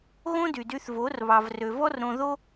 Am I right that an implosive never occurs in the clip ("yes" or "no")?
yes